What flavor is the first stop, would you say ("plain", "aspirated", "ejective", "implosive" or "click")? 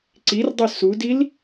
click